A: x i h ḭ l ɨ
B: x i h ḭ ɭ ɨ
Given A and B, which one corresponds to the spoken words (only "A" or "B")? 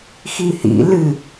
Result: A